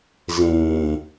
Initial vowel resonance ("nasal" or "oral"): nasal